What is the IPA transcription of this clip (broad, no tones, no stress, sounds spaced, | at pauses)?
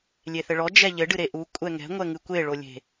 lʲ e θ ɘ ɭ ɔ d͡ʒ ɛ ʎ ɘ ɖ ɨ ɾ e ʔ u kʷʼ ɛ ŋ ɛ̤ ŋʷ ɛ ŋ ɨ kʷ e ɭ o lʲ e̤